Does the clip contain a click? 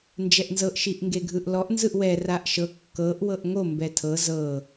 no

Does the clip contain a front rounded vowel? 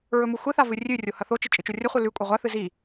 no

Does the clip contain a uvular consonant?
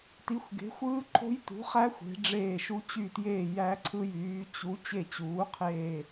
yes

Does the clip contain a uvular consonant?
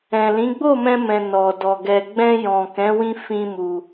no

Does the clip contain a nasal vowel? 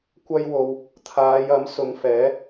no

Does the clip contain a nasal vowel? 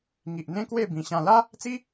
yes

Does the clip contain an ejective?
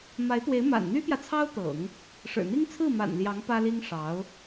no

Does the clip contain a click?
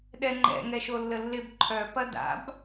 yes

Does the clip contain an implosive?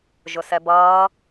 no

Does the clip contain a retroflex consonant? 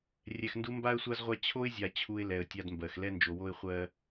no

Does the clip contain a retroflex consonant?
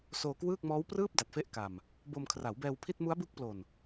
no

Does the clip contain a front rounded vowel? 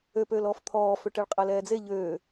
yes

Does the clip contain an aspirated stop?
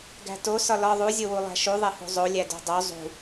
no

